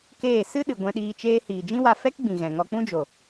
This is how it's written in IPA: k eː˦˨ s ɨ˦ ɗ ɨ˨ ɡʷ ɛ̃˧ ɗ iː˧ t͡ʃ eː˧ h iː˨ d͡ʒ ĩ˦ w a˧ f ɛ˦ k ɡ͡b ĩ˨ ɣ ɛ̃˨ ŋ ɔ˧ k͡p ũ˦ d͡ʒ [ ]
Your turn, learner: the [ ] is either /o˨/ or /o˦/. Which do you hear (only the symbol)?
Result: o˨